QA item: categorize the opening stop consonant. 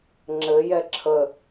click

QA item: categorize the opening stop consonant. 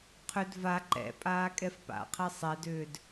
aspirated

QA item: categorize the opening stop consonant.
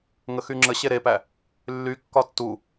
click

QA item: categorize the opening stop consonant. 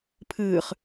aspirated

